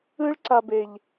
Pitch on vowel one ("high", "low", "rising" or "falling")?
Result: high